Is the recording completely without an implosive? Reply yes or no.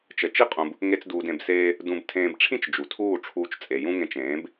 yes